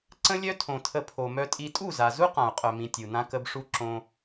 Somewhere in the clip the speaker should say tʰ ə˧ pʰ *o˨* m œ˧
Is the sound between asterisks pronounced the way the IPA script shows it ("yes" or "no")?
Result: yes